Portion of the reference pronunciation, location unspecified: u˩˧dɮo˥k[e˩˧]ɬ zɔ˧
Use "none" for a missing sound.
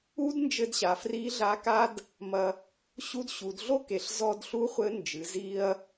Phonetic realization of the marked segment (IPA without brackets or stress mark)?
e˩˧